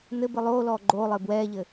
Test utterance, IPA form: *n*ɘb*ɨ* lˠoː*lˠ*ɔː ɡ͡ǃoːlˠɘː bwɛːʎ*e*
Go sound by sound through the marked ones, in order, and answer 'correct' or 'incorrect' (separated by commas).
correct, correct, incorrect, incorrect